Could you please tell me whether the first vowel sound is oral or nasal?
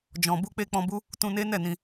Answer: nasal